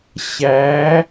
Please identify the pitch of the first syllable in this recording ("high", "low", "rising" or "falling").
rising